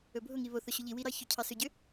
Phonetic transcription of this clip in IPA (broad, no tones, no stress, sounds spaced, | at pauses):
ɵ bʱ ʊ ŋ i β o θ ʊ ɕ ʊ ʎ i w i ɾ ɑ ç ʏ cʰ ɑ s ʏ ɟ ʏ